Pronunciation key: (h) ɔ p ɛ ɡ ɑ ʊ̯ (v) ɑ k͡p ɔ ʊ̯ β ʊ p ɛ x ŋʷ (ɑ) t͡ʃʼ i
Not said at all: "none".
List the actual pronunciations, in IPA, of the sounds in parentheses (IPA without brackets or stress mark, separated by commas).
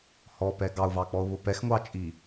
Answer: h, v, ɑ